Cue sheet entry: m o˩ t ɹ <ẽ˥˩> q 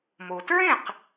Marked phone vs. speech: correct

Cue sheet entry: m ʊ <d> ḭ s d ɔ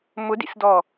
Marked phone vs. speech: correct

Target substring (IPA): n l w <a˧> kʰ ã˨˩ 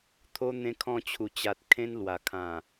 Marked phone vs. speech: incorrect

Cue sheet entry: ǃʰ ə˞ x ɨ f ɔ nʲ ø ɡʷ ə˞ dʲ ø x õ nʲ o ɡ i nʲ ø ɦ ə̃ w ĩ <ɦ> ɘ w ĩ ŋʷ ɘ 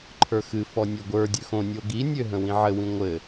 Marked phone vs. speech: incorrect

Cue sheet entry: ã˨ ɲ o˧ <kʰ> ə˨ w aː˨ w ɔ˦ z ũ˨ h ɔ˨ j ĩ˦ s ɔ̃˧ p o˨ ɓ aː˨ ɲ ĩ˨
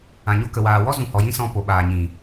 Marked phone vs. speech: incorrect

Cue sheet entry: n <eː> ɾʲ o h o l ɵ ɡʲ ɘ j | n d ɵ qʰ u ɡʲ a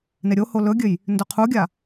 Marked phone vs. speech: incorrect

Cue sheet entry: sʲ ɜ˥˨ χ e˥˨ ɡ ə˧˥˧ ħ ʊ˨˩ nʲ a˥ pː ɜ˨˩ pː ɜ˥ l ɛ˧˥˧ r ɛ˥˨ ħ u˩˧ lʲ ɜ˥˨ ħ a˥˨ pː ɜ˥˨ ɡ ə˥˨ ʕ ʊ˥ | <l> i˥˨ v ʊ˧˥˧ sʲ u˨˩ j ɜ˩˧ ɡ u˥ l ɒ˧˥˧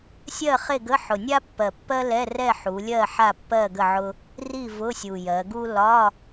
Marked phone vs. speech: incorrect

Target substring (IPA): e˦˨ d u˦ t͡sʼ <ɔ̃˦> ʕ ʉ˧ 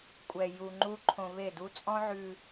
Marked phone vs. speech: correct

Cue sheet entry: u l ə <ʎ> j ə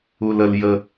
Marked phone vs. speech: incorrect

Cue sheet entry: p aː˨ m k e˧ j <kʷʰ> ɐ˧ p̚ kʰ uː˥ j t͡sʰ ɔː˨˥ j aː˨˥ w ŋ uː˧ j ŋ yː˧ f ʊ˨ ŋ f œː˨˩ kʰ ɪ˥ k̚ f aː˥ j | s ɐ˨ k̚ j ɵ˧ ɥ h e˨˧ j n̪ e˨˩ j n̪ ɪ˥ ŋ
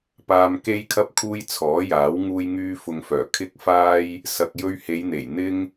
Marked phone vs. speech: incorrect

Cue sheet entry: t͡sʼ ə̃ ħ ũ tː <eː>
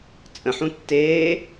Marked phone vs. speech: correct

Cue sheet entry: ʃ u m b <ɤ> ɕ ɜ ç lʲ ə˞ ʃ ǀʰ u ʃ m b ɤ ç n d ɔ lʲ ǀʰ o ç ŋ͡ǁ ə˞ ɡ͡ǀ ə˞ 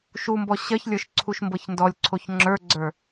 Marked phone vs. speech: incorrect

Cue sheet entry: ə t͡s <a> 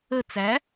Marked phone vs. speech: incorrect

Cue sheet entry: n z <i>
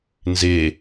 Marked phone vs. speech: incorrect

